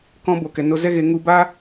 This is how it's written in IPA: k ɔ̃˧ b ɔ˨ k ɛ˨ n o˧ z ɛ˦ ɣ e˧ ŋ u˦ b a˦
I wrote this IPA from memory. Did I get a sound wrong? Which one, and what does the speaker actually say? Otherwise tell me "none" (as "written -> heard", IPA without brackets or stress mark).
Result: ɔ˨ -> o˨